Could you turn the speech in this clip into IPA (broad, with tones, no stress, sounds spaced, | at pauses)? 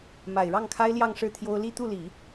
m a˨˩ ɪ̯ ɻ ɑ˥˩ ŋ kʰ a˥ ɪ̯ l j ɑ˥˧ ŋ ʂ ɻ̩˥˩ t̪ʰ j o˥ ʊ̯ l i˥˧ t̪ u˥˩ l i˨˩˦